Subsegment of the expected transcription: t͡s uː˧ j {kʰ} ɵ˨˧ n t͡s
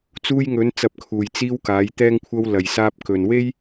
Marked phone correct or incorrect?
incorrect